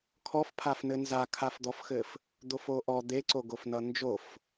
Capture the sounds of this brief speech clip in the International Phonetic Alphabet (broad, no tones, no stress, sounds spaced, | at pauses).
kʰ ɔ f pʰ a f n ɘ n z a kʰ a f d̪ ɔ f x ɘ f | d̪ o f o ʔ ɔ d̪ e ǀ o ɡ o f n ʌ n d͡ʒ o f